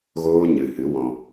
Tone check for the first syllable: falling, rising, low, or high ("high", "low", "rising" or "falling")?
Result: high